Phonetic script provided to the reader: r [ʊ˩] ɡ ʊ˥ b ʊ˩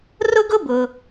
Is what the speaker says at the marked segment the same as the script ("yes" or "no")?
no